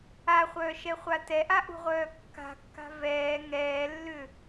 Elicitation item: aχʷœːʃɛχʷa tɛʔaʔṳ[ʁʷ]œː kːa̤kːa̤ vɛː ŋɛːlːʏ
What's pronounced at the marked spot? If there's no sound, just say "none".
ʁʷ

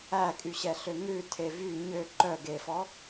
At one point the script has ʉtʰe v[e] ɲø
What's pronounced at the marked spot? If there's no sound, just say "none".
y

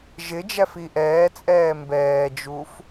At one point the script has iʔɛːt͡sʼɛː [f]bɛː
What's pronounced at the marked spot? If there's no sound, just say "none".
m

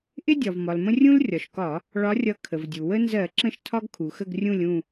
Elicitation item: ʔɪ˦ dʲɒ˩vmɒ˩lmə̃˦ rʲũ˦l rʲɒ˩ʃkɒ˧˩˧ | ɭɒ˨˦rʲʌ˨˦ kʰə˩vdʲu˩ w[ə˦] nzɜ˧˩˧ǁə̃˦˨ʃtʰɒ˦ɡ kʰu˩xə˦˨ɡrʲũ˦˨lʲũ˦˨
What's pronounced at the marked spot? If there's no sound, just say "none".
ə˦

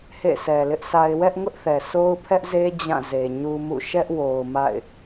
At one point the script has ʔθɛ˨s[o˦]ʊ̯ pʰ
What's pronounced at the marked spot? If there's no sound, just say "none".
o˦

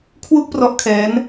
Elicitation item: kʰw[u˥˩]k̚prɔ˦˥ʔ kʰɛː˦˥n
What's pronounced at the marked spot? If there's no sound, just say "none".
u˥˩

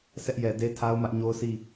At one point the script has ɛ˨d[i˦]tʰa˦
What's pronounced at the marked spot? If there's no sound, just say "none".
e˦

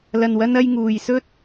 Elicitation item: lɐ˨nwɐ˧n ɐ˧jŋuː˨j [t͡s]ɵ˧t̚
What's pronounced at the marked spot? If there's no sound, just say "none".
s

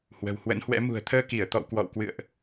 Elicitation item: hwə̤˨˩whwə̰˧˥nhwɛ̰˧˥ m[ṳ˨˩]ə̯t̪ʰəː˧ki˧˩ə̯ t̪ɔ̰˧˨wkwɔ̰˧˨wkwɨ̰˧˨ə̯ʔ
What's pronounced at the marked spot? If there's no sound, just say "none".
ṳ˨˩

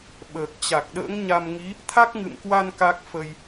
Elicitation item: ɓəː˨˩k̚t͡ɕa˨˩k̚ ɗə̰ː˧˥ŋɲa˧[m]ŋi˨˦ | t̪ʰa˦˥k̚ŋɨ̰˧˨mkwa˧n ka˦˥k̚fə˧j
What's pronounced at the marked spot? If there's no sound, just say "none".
m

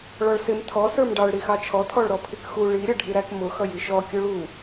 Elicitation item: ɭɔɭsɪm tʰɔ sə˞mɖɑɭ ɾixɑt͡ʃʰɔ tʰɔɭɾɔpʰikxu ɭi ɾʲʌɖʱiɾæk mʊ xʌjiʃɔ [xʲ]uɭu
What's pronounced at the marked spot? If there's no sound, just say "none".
kʲ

